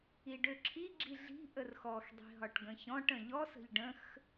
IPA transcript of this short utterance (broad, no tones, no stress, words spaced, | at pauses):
iɖøǁʰi ɡ͡ǁiɮi̤ ʔərxɔx dˤi̤ɦɒʈɡə̃çɔ̃ʈ ə̃ʎɔ sə̤ʎɖə̃x